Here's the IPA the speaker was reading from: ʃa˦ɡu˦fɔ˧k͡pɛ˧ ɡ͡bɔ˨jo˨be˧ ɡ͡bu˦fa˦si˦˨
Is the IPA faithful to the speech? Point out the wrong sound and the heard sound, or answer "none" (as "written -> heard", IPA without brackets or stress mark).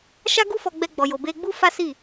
k͡p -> ɡ͡b